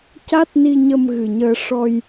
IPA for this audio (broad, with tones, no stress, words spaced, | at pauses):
ca˦˥t̚ni˧ɲə˧m ɣɨ˨˩ɲəː˧ ʂɔ˧j